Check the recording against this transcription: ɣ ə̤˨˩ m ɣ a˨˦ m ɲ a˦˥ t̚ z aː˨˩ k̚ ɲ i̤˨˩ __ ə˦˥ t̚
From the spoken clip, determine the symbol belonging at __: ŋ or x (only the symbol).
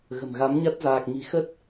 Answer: x